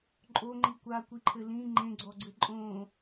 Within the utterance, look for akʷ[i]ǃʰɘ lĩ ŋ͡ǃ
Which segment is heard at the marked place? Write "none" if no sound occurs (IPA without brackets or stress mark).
i